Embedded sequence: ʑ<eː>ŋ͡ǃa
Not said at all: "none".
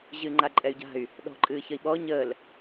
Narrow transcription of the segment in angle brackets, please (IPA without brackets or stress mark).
ɨː